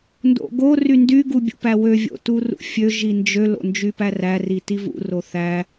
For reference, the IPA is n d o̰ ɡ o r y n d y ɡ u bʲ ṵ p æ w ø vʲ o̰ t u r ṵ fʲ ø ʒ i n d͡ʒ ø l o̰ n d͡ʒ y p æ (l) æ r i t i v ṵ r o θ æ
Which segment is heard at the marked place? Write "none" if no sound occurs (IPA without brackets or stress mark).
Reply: r